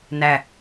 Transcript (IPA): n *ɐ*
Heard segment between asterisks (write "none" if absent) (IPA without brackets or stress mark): æ